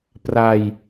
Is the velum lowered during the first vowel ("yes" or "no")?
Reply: no